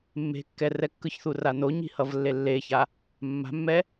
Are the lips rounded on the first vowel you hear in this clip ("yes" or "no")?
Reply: no